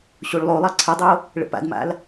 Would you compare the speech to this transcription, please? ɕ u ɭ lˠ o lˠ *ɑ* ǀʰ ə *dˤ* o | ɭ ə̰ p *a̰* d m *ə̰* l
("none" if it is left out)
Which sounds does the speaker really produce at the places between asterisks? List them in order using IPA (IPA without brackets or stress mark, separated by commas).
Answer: ɑ, dˤ, a̰, a̰